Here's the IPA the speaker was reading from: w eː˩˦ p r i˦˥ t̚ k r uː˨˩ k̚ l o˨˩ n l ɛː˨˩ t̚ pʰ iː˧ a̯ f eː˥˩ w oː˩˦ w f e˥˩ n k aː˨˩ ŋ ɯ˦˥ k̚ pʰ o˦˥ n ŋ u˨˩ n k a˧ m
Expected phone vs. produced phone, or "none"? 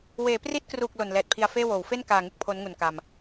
iː˧ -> i˧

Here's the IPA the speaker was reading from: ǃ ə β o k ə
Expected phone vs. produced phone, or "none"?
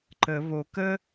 none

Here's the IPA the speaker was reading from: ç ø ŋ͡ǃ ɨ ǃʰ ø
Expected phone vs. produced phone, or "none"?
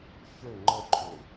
ɨ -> ə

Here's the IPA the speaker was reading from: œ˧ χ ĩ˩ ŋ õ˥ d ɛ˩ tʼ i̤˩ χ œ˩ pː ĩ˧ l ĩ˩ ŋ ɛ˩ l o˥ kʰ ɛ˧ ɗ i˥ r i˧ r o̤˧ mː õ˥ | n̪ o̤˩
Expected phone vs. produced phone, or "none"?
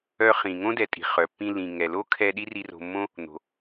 none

